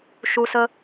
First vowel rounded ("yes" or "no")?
yes